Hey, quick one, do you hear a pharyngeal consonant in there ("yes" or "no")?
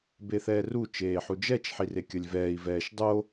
yes